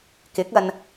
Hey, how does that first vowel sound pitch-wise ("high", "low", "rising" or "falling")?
rising